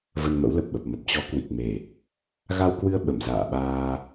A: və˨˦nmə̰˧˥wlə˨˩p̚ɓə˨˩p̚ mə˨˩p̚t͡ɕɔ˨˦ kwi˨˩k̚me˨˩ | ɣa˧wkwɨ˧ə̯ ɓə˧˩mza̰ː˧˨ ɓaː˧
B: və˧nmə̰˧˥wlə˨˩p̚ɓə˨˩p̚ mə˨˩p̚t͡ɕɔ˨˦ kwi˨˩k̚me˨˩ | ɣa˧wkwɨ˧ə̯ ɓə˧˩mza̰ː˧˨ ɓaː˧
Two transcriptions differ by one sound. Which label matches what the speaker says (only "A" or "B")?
B